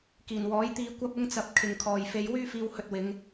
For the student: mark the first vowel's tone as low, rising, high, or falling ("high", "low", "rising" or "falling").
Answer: low